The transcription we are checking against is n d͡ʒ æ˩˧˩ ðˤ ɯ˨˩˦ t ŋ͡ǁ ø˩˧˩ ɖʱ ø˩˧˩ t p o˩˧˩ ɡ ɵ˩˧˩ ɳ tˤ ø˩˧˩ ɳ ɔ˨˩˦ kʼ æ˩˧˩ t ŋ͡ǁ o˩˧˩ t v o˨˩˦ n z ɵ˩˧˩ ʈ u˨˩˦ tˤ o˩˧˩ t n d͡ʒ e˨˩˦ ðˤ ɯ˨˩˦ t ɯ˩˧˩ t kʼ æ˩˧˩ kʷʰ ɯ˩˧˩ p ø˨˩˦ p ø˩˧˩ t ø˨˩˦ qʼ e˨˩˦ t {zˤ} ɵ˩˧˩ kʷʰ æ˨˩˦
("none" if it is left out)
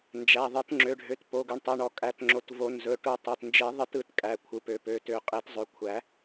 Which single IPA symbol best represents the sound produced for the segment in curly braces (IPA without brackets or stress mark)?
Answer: zˤ